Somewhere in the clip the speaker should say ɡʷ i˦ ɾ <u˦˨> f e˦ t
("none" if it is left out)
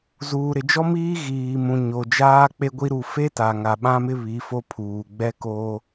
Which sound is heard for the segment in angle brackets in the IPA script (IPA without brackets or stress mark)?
u˦˨